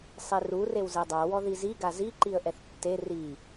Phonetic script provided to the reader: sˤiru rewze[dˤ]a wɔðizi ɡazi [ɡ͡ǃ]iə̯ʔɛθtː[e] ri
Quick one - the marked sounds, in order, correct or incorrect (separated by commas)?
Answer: correct, incorrect, correct